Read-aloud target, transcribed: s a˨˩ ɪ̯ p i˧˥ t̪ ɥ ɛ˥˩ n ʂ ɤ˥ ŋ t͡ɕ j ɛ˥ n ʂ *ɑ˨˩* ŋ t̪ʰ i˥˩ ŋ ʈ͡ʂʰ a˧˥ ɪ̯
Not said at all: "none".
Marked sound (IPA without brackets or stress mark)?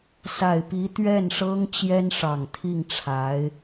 ɑ˨˩